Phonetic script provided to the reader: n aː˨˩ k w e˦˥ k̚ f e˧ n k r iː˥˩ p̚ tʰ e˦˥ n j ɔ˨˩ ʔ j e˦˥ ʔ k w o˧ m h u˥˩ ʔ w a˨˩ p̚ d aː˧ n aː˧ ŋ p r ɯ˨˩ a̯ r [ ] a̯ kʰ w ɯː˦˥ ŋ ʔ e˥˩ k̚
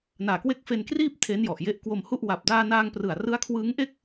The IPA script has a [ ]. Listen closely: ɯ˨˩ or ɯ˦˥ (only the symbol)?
ɯ˦˥